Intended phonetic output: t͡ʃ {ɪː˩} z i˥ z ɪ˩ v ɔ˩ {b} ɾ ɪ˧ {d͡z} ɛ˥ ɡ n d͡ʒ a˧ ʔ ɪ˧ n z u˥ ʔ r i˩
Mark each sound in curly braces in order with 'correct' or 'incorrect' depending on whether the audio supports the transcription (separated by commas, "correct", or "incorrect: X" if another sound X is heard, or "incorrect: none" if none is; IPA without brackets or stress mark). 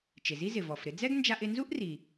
incorrect: ɪ˩, incorrect: f, correct